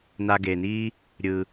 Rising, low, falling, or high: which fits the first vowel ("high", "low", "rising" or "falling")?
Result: low